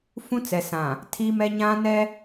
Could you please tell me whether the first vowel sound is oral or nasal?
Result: nasal